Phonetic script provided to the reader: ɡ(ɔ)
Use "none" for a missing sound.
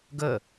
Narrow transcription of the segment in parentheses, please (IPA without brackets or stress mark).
ə